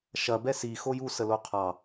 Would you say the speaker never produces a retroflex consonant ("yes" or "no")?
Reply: yes